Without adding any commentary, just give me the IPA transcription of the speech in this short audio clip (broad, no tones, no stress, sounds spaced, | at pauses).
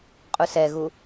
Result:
qʼ u s ɛ ɣ u